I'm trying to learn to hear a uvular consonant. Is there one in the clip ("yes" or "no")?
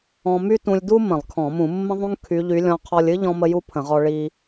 yes